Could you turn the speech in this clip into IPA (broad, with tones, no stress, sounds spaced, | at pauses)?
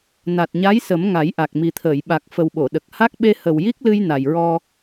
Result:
n a˨˩ t̚ ɲ a˧˥ j s ə˨˩˦ m ŋ a˨˩˦ j ʔ a˨˩ k̚ m i˨˩ t̪ʰ əː˨˩˨ j ɓ a˨˩ k̚ f ə˨˩ w ɓ o˨˩˨ ɗ ə˨˩ k̚ h a˦˥ k̚ ɓ e˧ h ə˨˩ w j i˦˥ k̚ l ɨ˧ j n a˨˩ j ɹ ɔ˧